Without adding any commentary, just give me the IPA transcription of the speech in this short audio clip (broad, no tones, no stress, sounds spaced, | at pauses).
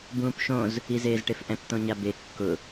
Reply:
b ũː p ʃ õ z | i z eː z ʈ e f ʔ ɛ̃ p t̪ õ ɲ a b e kː ʊ